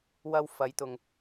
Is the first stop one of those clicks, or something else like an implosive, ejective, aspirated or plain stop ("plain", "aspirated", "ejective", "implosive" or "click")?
plain